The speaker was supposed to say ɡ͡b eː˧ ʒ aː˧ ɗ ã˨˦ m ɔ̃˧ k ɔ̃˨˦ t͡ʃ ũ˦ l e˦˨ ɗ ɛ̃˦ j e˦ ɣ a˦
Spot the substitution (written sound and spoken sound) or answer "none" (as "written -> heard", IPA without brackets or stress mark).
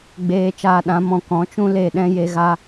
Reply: ʒ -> t͡ʃ